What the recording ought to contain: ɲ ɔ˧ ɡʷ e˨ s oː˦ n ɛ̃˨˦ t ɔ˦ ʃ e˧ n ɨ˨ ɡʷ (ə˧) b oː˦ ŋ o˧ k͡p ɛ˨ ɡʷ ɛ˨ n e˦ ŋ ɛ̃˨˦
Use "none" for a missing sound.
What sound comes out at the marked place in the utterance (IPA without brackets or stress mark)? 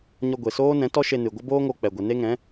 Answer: ə˦